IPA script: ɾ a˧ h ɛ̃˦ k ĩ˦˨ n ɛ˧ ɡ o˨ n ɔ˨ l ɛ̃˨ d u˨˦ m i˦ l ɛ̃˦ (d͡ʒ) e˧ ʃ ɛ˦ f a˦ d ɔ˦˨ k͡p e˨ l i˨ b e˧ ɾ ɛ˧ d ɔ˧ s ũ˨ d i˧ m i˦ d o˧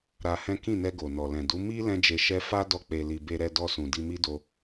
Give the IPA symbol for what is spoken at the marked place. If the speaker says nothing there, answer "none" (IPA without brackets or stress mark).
d͡ʒ